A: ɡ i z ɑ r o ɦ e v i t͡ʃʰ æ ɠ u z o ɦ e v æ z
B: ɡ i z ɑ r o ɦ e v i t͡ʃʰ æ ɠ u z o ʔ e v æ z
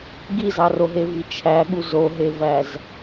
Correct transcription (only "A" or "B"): A